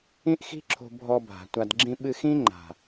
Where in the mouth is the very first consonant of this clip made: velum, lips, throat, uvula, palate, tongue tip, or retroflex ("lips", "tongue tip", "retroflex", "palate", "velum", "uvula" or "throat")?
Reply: throat